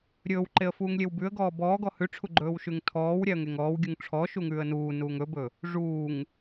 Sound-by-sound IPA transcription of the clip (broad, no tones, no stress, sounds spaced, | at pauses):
ɾʲ ɵː w ǃ e ə̯ f uː ŋ lʲ e w b ʉ ə̯ ɡ ɔː b ɔː ɡ ɔ h ʉ ʈ͡ʂʰ u ɡ͡ǃ ɵː w ʃ ʉ ŋ tʰ ɔː w ɾʲ æ ə̯ ŋ e ŋ ɔː w ɡʲ u ŋ ʈ͡ʂʰ ɔ ʃ u ŋ ʉː ə̯ n uː n uː ŋ ɵ b ɵ | ʐ uː ŋ